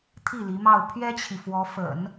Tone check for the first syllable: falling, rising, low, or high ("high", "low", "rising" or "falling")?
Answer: falling